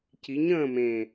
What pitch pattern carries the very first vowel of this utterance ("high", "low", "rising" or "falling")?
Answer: rising